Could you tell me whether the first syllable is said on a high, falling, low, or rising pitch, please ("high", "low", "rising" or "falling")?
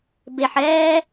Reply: low